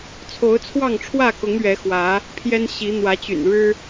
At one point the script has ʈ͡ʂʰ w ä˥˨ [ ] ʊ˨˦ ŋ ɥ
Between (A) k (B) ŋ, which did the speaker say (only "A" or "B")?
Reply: A